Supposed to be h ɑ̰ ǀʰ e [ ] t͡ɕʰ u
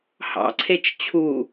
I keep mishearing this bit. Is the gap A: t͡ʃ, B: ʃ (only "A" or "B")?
A